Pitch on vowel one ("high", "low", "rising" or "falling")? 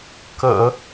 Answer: low